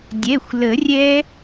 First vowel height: mid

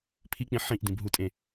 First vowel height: high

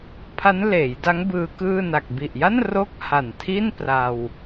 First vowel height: low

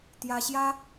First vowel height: low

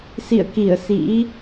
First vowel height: high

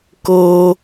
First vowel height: mid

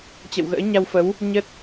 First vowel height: mid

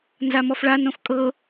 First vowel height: low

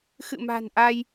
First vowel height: high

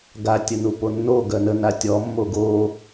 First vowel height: low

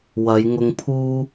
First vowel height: low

